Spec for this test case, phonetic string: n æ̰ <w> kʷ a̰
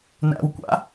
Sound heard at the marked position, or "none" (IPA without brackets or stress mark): w